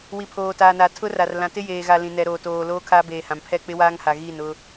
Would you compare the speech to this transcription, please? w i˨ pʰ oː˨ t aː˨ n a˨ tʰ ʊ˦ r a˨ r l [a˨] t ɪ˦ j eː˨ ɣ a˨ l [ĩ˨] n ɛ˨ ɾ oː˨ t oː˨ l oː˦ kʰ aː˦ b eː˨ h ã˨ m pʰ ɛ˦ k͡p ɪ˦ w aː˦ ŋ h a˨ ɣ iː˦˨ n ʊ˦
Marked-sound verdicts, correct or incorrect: incorrect: ã˨, correct

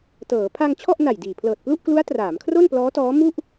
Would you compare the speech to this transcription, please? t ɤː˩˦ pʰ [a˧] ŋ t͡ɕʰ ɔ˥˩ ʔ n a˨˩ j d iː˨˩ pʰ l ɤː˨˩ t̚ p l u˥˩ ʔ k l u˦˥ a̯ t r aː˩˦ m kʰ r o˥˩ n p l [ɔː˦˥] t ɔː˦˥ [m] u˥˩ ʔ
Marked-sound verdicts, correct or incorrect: correct, correct, correct

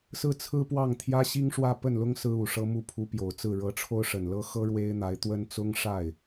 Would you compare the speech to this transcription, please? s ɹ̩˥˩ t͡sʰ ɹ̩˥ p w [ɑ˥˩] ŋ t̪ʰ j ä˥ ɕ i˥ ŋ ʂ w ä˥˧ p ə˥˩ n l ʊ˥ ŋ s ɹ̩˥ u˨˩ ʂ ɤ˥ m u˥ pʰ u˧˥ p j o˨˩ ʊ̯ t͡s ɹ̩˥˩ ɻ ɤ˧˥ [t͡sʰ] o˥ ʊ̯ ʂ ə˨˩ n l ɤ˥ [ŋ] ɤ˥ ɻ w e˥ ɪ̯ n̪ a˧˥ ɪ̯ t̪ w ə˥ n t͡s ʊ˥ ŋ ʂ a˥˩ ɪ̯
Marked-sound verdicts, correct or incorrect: correct, incorrect: ʈ͡ʂʰ, incorrect: x

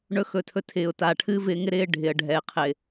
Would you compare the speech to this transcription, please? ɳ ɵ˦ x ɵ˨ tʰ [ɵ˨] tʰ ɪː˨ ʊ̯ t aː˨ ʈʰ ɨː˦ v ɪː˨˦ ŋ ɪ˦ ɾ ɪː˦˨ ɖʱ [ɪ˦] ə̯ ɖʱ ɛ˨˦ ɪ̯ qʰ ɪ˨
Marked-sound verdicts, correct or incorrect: incorrect: ɵ˦, incorrect: ɪ˨

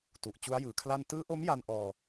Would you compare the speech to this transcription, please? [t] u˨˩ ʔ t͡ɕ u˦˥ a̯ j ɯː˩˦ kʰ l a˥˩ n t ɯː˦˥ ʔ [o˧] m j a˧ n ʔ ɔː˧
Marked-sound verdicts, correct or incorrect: correct, incorrect: o˦˥

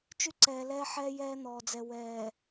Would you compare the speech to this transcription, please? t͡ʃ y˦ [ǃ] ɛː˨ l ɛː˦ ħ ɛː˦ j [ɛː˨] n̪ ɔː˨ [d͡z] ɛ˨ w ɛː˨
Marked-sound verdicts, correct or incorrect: incorrect: ǀ, incorrect: ɛː˦, correct

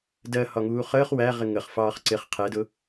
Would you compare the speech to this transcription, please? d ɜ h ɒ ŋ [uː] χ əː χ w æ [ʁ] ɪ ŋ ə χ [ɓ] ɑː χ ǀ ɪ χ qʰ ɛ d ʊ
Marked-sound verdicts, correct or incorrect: correct, correct, incorrect: f

